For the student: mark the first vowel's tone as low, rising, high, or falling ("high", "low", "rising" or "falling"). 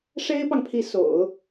high